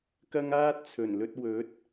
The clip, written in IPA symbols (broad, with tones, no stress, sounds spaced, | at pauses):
k ɐ˥ ŋ aː˥ t̚ t͡sʰ ɵ˨˩ n l ɵ˧ t̚ w ɵ˨˥ t̚